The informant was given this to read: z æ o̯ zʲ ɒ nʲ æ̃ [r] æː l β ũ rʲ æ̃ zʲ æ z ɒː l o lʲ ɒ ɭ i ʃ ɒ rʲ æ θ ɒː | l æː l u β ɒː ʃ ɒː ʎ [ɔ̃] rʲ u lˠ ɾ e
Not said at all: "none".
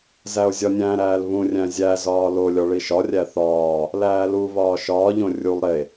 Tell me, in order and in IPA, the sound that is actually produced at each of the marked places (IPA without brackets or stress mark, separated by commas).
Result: ɾ, õ